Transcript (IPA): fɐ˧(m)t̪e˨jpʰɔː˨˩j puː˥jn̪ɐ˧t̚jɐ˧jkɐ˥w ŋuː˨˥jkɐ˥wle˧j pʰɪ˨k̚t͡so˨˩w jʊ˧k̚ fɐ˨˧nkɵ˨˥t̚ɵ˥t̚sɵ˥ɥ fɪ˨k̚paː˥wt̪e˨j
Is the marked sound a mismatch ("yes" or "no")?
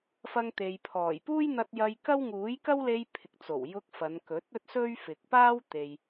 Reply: yes